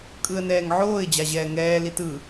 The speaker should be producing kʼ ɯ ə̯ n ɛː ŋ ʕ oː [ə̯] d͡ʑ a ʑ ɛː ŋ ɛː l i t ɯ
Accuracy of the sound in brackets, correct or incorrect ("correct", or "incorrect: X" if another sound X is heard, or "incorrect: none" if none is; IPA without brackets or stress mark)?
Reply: incorrect: ɪ̯